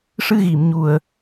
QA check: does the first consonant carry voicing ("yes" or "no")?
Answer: no